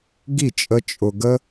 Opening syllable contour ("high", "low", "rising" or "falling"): falling